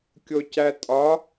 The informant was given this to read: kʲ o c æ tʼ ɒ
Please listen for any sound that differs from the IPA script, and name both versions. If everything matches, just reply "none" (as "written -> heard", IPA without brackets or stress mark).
none